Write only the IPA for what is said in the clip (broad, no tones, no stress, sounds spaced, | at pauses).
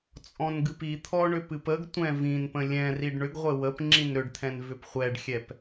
t͡sʼ ɔ̃ n ɡ ɨ p i t̪ʰ ɔ ɳ ʏ p ɨ p ə ɡ tʷ ɛ̃ v ĩ n p ə̃ lʲ ɛ̃ r i ɖ ɳ ʏ ɡ ʁʷ ɘ w ə p ŋ͡ǁ ĩ n ɾ ʏ ɖ t̪ʰ ɛ̃ n v ʏ p χʷ ɛ ɖ xʲ ɛ p